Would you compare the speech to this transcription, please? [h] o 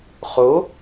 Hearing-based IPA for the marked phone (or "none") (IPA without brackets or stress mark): χ